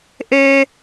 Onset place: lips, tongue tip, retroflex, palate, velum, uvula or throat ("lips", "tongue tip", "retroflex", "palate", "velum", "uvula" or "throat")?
throat